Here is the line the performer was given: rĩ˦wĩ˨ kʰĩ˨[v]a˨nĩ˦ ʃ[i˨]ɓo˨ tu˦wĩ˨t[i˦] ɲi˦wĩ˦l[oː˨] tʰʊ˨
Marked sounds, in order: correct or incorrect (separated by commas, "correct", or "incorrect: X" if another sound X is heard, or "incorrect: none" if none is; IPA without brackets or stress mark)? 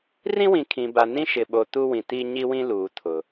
incorrect: b, incorrect: ɪ˨, correct, incorrect: uː˨